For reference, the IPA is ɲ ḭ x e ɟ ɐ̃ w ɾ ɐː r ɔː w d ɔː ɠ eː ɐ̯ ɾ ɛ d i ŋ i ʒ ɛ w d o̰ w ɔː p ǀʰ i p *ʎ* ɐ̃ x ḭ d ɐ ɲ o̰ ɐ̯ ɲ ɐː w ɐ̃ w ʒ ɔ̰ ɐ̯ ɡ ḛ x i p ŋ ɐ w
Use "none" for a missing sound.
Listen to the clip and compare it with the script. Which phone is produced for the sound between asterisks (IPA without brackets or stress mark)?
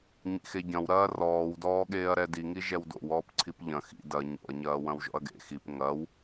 ʎ